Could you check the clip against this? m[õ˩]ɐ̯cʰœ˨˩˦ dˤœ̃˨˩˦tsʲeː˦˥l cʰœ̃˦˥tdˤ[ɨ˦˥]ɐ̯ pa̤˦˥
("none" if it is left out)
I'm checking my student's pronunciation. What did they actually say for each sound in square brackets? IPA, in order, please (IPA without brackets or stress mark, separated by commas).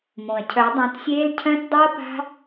õ˩, ɨ˦˥